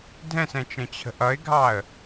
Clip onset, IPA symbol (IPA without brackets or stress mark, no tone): dʱ